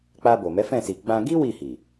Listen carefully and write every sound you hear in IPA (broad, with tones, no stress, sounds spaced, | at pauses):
k͡p a˧ b o˨ m ɛ˨˦ f ɛ̃˦˨ s i˨ ɡ͡b ã˧ ɡ i˦ w i˦˨ h i˨